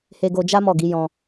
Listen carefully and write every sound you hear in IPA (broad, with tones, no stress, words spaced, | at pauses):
he˧ɡo˧d͡ʒa˦ mɔ˦˨ɡi˨˦ jɔ̃˧